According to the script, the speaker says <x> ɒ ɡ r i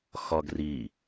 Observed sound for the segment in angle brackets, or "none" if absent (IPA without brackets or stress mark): x